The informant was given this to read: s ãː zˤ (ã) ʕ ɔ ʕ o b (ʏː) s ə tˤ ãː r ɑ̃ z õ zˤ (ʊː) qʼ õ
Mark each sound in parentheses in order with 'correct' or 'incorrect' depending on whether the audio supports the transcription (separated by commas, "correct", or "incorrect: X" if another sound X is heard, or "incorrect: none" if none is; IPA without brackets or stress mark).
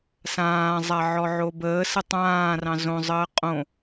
incorrect: a, incorrect: əː, incorrect: əː